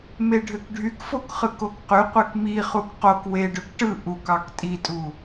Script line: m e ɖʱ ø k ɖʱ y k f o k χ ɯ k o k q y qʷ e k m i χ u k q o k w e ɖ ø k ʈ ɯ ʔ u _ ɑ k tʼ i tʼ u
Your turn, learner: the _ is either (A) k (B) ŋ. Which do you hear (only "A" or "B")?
A